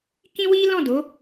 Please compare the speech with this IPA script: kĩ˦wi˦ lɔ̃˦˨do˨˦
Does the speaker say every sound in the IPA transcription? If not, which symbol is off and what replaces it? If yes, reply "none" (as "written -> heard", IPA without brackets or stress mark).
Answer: none